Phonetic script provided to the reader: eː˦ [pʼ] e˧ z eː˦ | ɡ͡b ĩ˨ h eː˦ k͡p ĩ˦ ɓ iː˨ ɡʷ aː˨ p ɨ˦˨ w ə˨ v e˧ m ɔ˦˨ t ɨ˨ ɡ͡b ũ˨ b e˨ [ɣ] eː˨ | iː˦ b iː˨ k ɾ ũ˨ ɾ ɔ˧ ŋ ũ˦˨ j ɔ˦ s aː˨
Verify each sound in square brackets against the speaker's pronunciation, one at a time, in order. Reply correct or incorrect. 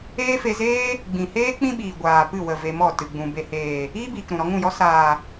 incorrect, incorrect

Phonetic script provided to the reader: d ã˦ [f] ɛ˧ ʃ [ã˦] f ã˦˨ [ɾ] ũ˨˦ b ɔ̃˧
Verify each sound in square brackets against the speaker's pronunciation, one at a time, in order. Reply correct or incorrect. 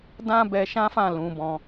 incorrect, correct, incorrect

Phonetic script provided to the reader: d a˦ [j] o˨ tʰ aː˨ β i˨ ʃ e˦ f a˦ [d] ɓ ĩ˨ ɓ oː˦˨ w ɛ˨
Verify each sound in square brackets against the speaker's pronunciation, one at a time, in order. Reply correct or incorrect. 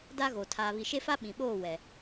incorrect, incorrect

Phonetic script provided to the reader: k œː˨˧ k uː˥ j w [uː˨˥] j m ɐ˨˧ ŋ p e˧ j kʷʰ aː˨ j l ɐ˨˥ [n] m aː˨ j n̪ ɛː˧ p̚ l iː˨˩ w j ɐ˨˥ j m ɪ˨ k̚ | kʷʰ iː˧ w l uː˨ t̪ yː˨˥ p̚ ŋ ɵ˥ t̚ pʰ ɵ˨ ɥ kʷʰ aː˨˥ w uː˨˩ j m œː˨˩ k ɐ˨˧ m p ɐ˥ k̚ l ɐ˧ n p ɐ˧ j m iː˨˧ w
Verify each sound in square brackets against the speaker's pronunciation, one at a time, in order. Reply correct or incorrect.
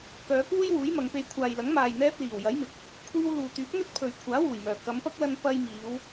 correct, incorrect

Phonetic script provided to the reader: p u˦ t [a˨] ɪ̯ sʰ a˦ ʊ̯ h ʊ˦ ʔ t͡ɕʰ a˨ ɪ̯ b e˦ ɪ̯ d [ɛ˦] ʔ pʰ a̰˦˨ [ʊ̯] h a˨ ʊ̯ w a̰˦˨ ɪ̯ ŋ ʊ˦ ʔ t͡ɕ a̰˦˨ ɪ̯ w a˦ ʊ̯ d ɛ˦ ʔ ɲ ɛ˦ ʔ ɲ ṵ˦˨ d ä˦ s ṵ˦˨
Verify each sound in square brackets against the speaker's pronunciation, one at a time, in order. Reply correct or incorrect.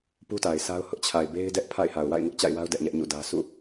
correct, correct, incorrect

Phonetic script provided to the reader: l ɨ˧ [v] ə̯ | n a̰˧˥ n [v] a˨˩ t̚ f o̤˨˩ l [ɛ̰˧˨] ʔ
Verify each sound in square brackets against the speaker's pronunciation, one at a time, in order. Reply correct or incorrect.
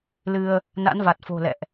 incorrect, correct, correct

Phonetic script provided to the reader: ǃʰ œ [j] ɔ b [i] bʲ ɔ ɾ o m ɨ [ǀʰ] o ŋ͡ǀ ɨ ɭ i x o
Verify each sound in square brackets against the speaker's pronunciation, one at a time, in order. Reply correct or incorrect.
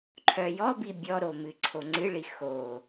correct, correct, correct

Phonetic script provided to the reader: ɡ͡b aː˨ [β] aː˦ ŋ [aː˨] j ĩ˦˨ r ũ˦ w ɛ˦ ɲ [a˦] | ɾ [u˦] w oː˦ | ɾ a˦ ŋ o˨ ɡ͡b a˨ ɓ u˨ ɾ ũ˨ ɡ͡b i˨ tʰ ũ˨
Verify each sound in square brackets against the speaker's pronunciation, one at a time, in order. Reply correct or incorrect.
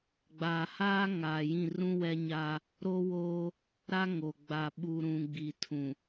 incorrect, correct, incorrect, incorrect

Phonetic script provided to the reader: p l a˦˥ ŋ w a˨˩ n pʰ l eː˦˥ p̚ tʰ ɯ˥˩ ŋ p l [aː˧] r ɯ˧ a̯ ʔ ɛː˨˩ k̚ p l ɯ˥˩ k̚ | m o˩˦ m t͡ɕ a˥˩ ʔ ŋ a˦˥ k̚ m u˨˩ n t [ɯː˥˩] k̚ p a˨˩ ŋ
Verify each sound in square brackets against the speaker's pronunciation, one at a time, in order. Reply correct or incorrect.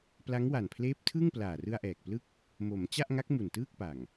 incorrect, correct

